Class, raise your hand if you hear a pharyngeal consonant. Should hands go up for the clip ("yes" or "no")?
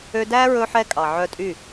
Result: yes